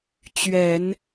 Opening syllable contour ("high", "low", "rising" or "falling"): low